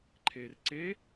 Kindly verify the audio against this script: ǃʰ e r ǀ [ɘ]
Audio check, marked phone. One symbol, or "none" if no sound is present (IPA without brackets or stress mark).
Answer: e